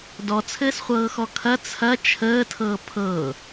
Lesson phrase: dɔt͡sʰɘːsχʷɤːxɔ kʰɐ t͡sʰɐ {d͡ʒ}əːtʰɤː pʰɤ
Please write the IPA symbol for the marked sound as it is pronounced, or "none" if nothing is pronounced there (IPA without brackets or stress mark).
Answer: t͡ʃʰ